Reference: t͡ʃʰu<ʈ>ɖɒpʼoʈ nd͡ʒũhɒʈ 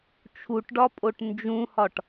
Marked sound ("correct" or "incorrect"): correct